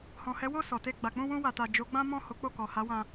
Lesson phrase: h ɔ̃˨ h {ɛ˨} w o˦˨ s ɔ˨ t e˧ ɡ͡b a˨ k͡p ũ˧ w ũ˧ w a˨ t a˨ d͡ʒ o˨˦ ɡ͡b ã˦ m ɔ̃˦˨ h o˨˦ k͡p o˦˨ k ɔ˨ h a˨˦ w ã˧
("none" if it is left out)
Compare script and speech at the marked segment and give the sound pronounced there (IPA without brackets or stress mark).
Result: ɛ˨˦